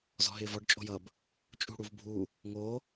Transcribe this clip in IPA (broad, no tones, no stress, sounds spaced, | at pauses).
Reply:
z ɔ̤ ɦ ɪː v ɔ ɖ t͡ʃʼ o̤ j ʌ b | t͡ʃʼ ṳ ɽ u v bʱ u | ŋ o